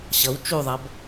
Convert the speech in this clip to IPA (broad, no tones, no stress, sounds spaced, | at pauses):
ɕ ʌ w t͡ʃ u ðˤ ʌ b